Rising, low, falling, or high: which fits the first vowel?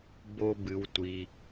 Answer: high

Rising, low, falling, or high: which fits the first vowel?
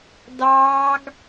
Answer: high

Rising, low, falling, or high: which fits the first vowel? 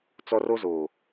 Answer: high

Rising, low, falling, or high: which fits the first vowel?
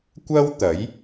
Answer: high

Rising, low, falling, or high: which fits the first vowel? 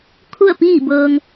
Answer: falling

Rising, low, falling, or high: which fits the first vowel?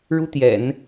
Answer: high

